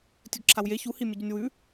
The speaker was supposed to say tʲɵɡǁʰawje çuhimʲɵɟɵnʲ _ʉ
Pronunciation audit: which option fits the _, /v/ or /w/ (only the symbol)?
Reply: w